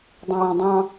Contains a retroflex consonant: no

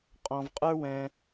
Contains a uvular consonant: yes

